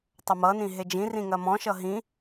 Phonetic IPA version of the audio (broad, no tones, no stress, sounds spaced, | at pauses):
tˤ ɐ m ʌ n ĩ ɦ e d͡ʒ ĩ r ĩ ŋ ɐ m ɔ̃ ʃ ʌ ɦ ĩ